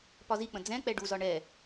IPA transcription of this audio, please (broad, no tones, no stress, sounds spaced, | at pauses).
p ɒ z i k͡p ə̃ d͡z ɛ̃ k͡p ɛ ɖ u z ɒ ɳ ɛ